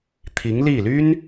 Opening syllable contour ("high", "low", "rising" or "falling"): rising